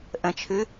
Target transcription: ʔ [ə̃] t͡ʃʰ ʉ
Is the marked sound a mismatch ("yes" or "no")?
no